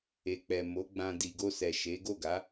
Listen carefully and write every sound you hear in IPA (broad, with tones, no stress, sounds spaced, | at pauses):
e˨ k͡p ɛ˨ m o˨˦ ɡ͡b ã˧ d i˨ ɡ o˧ s ɛ˨ ʃ e˨˦ ɡ o˦˨ ɡ a˨˦